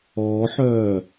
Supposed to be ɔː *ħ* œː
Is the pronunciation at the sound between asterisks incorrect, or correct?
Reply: correct